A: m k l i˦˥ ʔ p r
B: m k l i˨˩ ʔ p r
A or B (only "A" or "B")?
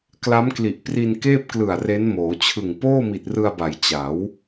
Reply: B